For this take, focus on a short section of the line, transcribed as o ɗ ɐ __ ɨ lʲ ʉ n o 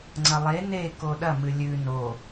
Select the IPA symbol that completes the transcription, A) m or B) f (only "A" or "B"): A